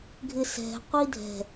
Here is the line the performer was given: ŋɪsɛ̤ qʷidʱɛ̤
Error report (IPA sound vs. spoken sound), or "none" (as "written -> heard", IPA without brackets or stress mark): ŋ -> ɡʱ